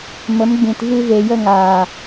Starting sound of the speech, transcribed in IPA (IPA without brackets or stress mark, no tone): m